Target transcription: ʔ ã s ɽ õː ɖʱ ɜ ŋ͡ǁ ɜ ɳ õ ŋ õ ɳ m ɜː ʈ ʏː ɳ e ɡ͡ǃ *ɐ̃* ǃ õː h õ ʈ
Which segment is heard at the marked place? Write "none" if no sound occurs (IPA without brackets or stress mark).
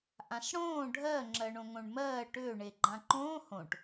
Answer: ã